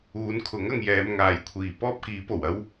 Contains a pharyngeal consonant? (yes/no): no